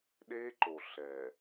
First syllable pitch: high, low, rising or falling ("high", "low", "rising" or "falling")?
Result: high